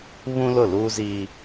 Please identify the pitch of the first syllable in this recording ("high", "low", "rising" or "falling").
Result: high